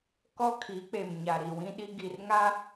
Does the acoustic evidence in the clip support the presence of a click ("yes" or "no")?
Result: no